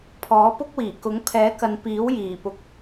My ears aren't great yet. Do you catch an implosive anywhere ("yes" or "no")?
no